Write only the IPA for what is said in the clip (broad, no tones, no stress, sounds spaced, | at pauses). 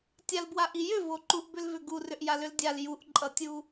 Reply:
tʲ a l b w a ʔ i j ʏ v o ǃ u ʔ b ʏ l v ʏ ɡ u r ʏ ʔ j a l ʏ l dʲ a l j u ʔ ǃʼ ʌ tʲ u